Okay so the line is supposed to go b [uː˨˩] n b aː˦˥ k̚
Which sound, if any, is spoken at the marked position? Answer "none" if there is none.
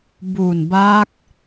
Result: uː˨˩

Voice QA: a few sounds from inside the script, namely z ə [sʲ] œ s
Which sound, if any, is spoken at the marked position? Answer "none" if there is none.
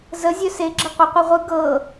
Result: zʲ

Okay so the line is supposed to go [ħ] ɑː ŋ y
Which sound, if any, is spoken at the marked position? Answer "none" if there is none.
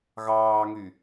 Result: ɣ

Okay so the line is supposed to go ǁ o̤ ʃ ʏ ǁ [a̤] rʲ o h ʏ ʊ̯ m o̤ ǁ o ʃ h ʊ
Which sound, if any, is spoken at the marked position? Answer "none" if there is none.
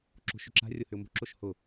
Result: a̤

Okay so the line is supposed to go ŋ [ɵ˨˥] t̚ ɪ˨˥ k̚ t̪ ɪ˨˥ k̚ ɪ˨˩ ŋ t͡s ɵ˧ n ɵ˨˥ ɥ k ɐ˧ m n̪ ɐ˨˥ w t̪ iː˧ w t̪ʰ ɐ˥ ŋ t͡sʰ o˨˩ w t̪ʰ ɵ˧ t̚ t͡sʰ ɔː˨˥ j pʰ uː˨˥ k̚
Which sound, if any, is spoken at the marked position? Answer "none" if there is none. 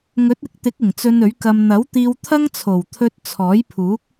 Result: ɵ˨˥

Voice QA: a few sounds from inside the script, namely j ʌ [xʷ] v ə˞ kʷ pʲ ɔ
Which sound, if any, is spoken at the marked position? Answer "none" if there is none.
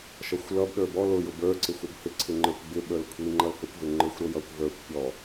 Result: kʷ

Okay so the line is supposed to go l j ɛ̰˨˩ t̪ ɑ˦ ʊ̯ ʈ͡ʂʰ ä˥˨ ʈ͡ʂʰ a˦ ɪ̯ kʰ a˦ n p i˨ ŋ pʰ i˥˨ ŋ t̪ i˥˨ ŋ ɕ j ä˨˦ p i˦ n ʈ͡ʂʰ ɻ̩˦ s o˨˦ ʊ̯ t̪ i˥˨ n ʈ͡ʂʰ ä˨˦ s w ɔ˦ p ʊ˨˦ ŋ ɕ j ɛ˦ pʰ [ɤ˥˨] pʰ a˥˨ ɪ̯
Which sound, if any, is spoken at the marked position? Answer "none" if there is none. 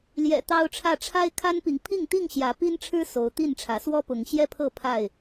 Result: ɤ˥˨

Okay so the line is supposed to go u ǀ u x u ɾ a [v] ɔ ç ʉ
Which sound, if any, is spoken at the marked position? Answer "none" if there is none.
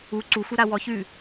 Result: w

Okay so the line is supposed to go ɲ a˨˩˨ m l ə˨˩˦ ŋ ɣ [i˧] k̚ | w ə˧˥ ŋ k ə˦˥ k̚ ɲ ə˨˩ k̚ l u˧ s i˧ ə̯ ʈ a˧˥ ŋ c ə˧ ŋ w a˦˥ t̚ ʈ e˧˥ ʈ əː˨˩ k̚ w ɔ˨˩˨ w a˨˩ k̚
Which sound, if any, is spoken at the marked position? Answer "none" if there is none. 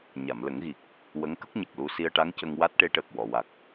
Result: i˨˩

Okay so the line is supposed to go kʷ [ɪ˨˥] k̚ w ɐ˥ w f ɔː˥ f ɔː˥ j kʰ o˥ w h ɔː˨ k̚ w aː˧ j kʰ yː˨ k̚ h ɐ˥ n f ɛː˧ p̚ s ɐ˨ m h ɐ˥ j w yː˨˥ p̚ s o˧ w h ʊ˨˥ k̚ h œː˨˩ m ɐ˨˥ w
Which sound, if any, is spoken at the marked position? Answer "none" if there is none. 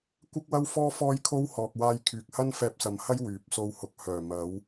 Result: ɪ˥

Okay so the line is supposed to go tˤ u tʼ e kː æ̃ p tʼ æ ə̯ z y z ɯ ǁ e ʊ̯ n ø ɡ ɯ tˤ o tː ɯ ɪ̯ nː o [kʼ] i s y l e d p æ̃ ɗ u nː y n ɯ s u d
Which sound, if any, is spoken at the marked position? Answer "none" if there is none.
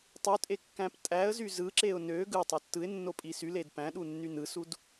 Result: pʼ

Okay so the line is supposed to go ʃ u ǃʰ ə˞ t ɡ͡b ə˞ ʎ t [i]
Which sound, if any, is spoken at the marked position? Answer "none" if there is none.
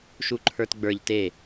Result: e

